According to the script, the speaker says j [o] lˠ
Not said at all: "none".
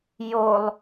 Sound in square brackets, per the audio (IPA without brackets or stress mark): o